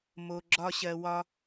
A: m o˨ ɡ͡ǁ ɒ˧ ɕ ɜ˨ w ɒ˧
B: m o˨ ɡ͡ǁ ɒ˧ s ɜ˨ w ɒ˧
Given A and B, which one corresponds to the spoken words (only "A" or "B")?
A